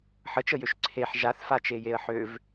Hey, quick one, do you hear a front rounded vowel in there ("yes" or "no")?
yes